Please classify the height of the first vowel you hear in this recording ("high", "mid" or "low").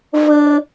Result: mid